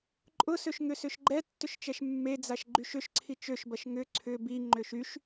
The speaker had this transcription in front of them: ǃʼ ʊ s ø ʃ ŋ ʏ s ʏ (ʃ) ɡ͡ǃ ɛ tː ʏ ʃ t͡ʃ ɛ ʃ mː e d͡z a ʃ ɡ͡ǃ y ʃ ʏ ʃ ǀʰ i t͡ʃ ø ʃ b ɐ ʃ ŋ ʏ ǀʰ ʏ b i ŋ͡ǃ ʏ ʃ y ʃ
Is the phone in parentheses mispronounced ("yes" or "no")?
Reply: no